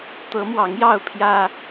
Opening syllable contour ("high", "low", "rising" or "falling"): rising